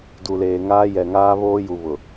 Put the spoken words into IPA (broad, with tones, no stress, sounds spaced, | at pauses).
d u˨ l eː˨ ŋ aː˦ j ɛ˨ ŋ aː˦ β oː˦ j u˨ β ʊ˨